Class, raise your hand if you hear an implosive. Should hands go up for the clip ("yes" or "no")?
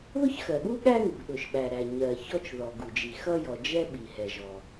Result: yes